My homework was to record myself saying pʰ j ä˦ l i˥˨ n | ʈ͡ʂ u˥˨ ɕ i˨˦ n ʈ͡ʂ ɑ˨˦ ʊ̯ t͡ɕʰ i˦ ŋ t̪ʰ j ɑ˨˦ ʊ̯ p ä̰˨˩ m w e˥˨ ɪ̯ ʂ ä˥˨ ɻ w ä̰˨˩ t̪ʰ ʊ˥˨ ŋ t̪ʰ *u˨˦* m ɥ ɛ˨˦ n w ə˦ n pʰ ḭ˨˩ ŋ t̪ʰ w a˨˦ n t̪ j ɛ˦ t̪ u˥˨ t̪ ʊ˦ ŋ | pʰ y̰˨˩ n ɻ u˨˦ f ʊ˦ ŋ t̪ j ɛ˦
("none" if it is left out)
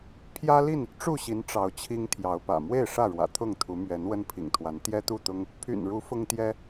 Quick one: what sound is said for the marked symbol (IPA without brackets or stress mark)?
u˨˦